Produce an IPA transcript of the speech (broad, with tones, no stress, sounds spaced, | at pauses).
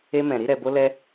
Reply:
e˦ m ɛ̃˧ ɾ i˦ ɾ ɛ˧ b o˦ l ɛ˦